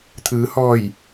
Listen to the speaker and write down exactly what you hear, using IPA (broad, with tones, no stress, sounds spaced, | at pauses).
t̪ʰ ɯː˩˧ h ɔː˧˩ j